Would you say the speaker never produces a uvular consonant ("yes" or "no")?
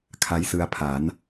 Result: yes